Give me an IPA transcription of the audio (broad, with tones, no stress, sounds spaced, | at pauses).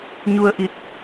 ɲ u˧ ə̯ ʔ i˧˩ t̚